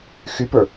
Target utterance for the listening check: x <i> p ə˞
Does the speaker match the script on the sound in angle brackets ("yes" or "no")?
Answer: no